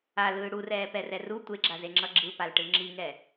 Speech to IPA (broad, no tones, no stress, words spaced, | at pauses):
alɯː ɽurɛːpɛrɛ ru tʷeɡ͡ǁazeŋ͡ǁʌ ɡ͡ǁɯpalʈɯ ŋ͡ǁiŋɛ